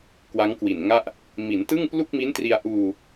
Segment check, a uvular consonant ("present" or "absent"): absent